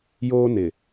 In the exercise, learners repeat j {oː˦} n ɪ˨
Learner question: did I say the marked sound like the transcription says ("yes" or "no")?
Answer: yes